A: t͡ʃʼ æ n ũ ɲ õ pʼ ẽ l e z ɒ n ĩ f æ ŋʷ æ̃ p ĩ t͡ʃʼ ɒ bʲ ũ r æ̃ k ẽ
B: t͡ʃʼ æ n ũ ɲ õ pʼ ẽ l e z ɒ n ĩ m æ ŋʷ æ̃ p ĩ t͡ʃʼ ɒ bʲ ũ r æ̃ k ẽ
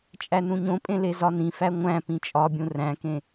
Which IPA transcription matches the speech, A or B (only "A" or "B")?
A